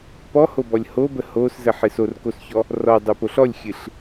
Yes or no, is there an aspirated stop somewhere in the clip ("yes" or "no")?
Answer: no